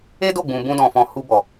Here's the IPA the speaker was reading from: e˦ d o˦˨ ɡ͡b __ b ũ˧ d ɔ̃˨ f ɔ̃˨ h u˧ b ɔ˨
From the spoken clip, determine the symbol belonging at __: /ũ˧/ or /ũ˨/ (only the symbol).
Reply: ũ˨